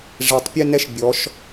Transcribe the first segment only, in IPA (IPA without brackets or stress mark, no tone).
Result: ʐ